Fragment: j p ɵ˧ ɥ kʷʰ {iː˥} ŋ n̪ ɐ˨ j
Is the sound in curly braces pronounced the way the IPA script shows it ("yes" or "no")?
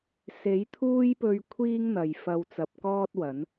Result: yes